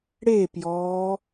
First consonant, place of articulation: retroflex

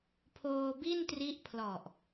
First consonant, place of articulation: labial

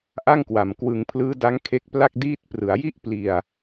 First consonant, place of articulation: glottal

